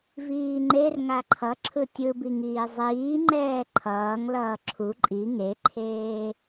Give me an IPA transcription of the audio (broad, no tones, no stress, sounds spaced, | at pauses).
v iː ŋ͡ǃ e r ŋ a ǃʰ ʌ ǁʰ ɯ tʲ ɯ b i ŋ iː zˤ iː ŋ͡ǃ ɛː ǃʰ ʌː ŋ l ʌː ǁʰ u ǃʼ i ŋ e ǃʰ eː